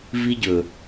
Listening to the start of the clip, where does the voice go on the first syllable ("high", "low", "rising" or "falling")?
high